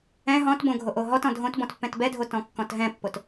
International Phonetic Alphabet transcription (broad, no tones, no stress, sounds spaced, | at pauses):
ɛ̃ ɦ ɔ̃ t b õ ɡʱ o ʔ o ɦ ɔ t ɔ̃ dʱ õ t b ɔ̃ t pː ɛ̃ t b ɛ dʱ o t ɔ̃ kː ɔ̃ t ɦ ɛ̃ pː o t